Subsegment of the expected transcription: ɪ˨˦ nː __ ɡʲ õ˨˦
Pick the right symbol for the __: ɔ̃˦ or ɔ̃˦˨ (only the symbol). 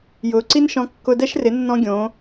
ɔ̃˦